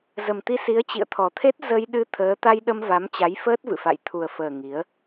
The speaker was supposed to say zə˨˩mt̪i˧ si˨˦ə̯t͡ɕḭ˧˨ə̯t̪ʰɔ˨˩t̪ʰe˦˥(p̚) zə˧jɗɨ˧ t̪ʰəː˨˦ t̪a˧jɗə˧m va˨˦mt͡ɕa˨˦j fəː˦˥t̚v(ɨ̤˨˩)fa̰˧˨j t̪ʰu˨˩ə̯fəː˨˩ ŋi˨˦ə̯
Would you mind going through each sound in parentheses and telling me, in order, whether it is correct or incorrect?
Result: incorrect: t̚, incorrect: ɨ̰˧˨

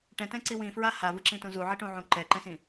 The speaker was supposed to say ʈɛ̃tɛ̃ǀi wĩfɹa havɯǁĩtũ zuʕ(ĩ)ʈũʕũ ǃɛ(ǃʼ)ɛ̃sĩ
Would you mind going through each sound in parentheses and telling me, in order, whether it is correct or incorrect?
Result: incorrect: i, incorrect: ǃ

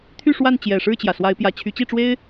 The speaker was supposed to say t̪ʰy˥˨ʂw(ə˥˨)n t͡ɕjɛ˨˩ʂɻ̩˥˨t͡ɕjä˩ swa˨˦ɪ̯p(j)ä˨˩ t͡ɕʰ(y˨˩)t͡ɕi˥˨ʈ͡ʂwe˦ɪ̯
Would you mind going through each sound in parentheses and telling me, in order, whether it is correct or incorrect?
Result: incorrect: a˥˨, correct, incorrect: y˨˦

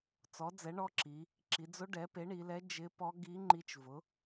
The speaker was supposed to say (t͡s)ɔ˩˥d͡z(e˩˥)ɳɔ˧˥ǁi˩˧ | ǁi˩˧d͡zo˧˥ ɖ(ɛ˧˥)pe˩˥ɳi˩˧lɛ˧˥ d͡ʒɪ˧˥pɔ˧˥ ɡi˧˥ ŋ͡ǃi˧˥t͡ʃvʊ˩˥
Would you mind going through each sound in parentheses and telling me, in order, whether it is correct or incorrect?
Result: correct, incorrect: ɛ˩˥, incorrect: ɛ˩˥

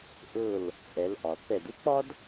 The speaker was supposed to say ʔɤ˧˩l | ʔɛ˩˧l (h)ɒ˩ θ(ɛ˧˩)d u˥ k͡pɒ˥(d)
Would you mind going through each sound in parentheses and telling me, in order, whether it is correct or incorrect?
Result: incorrect: ʔ, correct, correct

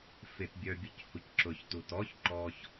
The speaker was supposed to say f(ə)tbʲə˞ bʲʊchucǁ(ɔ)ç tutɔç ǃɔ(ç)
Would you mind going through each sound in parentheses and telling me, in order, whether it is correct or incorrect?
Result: incorrect: ɪ, incorrect: ʊ, correct

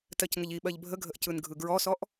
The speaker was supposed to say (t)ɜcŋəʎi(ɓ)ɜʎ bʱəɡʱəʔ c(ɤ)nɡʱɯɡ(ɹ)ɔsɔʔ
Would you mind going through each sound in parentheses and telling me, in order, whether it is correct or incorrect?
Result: correct, correct, incorrect: ɯ, correct

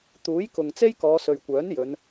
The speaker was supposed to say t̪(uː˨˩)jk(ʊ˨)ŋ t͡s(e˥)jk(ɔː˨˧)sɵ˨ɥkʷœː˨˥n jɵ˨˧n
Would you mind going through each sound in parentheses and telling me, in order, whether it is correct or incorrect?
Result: incorrect: uː˨˥, correct, correct, correct

